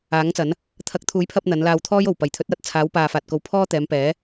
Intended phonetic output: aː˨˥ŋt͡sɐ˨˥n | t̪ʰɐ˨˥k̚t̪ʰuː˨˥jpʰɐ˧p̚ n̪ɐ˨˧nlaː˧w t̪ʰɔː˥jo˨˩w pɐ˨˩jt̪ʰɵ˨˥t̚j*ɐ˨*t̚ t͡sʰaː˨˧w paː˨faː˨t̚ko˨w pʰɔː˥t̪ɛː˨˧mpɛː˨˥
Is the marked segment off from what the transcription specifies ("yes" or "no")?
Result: yes